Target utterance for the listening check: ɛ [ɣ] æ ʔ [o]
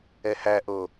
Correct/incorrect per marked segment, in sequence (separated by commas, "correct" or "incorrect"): incorrect, correct